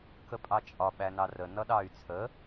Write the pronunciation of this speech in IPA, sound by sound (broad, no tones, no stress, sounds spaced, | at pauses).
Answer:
k ə pʼ ɑ t͡ʃʼ ɒ ɓ æ n ɑ r ə n ʌ ɗ ɑ y̯ t͡sʰ ə